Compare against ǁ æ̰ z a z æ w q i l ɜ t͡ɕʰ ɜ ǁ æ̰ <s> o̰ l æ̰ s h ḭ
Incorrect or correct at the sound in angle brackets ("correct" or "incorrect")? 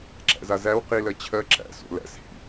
correct